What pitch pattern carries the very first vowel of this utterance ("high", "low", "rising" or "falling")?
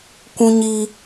high